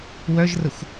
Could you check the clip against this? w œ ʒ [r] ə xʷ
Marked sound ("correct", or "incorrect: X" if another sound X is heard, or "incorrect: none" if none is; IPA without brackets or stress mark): correct